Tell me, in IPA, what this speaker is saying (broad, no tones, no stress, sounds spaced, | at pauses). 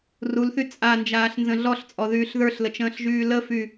r u l θ y t͡sʼ a n d͡ʒ aː ɬ n z ə̃ ɮ ɔ ɬ t͡sʼ ɔ ð yː ɬ ð ə˞ ɬ l ə t͡ʃ ə̃ː ɬ ʒ yː l ə f y